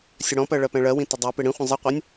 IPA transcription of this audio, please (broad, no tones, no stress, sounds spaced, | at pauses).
sʲ ə ɽ ɔ̃ p ɜ ɭ ɜ p ɛ̃ ɭ ɜ w ĩ t ə dˤ ɜ p ɪ ɽ ĩ χʷ ə̃ zˤ ɪ qʷ ɛ nʲ